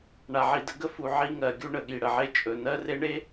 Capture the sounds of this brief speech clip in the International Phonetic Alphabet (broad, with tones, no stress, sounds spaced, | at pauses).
ɳ a˨ ʕ i˨ d ə˦ ɡ ə˦ f u˨ ʕ i˦ ŋ ɜ˨ ɡʲ u˦ ɳ ə˨ ɠ i˨ ɽ ə˨ ʕ e˦ t͡ʃʼ ɵ˨ n ɜ˦ r e˦ ɳ e˦